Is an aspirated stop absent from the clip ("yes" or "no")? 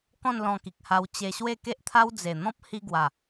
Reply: no